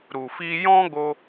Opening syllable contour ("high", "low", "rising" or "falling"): low